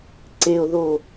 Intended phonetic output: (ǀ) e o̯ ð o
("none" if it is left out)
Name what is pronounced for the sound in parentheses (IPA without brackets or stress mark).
ǀ